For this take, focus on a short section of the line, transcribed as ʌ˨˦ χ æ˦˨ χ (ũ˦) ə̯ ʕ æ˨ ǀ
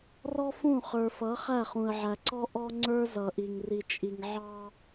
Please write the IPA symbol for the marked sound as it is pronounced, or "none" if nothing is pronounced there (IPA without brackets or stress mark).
ũ˨